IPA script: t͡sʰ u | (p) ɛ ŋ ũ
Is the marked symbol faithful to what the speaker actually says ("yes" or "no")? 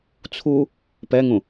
yes